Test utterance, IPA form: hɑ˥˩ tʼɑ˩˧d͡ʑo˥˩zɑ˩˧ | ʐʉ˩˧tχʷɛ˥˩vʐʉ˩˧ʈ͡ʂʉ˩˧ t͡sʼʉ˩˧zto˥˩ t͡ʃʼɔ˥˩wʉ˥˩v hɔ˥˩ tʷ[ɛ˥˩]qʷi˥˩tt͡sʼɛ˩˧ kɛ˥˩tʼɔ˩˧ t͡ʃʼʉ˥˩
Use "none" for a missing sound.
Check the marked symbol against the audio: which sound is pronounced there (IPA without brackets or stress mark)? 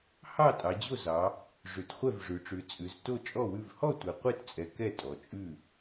ɛ˩˧